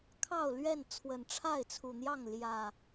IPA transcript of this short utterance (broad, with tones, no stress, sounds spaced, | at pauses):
kʰ ɑ˥˨ ʊ̯ l ɥ ɛ˥˨ n t͡sʰ w ə˨˩ n ʈ͡ʂʰ a˥˨ ɪ̯ t͡sʰ u˨˩ n̪ j ɑ˥˨ ŋ l j ä˨˩